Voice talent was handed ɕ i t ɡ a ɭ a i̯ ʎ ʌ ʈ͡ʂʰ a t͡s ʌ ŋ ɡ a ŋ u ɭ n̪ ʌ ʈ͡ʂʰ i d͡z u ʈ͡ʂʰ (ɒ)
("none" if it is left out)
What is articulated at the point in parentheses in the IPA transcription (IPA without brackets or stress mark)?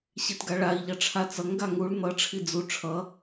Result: ʌ